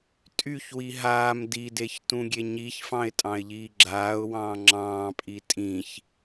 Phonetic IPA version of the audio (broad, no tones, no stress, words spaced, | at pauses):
tʼyçwi ɦaːm dideç tũɡʲeɲiçfɑ̃ɪ̯ tʼɑ̃ɪ̯ʎiːɡ͡ǁaːʊ̯wɑ̃ː ŋ͡ǁɑ̃ːpʼi tʼĩç